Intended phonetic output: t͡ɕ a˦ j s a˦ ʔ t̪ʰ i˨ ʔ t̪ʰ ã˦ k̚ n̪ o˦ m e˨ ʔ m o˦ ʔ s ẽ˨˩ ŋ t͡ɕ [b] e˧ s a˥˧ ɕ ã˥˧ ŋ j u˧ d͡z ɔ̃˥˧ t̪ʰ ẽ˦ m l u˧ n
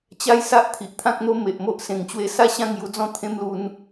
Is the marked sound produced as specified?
no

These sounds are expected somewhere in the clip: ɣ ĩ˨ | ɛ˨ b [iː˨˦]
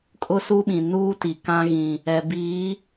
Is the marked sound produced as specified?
yes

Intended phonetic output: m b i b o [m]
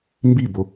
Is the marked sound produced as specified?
no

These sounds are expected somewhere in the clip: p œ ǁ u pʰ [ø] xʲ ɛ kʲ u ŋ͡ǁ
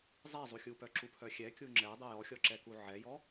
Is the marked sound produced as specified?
no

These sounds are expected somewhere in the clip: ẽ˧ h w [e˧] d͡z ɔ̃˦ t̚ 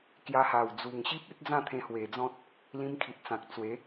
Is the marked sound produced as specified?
no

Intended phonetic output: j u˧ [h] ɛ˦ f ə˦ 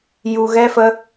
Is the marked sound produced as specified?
no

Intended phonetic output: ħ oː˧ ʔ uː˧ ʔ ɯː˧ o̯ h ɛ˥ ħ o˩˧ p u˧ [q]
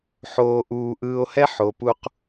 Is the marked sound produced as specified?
yes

